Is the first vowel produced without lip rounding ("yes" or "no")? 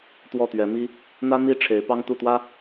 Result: no